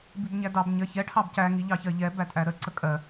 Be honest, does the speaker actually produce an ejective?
yes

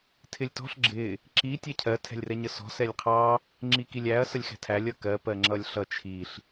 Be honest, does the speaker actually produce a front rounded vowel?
no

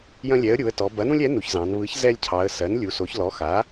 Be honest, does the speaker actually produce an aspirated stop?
yes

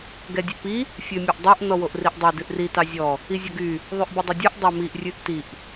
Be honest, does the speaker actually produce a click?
no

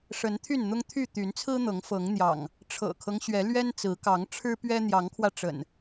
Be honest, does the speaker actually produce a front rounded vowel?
yes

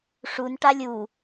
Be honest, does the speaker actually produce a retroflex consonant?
yes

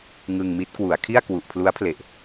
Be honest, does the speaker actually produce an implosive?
no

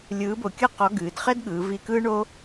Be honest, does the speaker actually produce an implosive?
yes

